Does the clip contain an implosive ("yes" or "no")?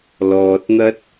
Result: no